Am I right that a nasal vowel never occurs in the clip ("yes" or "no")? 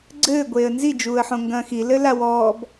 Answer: no